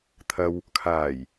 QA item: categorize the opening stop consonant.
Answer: aspirated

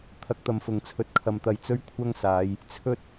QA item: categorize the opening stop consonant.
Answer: aspirated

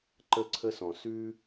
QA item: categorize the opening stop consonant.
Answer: click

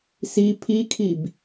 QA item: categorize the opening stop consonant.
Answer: aspirated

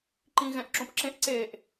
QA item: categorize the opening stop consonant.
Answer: click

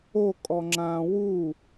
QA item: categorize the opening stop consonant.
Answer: ejective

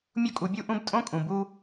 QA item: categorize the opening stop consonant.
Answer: ejective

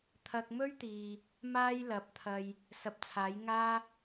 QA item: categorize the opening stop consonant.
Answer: aspirated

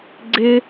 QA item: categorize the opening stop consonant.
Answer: click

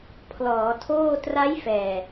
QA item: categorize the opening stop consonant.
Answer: aspirated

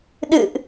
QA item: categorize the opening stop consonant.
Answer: implosive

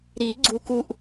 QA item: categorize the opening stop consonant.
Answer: click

